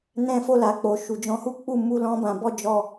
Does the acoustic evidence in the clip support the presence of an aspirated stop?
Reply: no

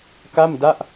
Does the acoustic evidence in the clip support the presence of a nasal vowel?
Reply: no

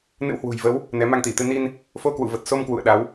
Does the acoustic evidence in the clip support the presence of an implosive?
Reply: yes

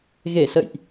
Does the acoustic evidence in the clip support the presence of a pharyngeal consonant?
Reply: no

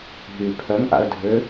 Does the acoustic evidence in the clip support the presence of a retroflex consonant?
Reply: no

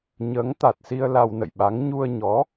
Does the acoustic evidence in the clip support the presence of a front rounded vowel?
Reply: no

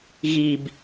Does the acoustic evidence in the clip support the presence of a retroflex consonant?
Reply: no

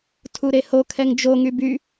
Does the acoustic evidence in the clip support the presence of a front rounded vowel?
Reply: yes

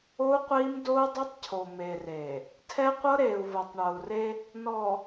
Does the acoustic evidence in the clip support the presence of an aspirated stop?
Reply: yes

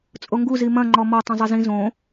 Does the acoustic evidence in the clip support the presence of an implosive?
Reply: no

